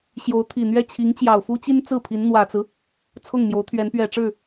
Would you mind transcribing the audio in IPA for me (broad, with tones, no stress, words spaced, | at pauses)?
ɕjo˧˥ʊ̯t̪ʰi˨˩n̪ɥɛ˥˩ t͡ɕʰi˧˥ŋt͡ɕjɑ˨˩ʊ̯fu˥t͡ɕi˥n t͡sɹ̩˥˩pʰi˧˥n n̪wä˨˩t͡sɹ̩˦ | t͡sʰʊ˥˩ŋmjo˧˥ʊ̯t̪ʰɥɛ˧˥n pɥɛ˨˩ʈ͡ʂɻ̩˥˩